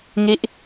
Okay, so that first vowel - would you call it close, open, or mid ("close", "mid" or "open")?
close